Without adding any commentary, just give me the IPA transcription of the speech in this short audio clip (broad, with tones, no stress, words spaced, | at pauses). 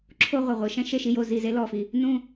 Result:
ǁʰo˥ʁʷɤ˨ʁʷɯ˨ ʃɛ̃˥ʃe˦˨ʃi˦˨jo˦˨ zi˦˨ze˥lɔ˦˨fi˨ | nũ˦˨